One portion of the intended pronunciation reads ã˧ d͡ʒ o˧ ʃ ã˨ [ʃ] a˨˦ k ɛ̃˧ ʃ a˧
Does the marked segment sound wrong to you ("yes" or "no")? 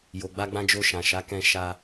no